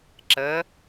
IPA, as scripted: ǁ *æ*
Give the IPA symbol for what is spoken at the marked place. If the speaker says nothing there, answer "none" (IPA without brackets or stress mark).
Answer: ə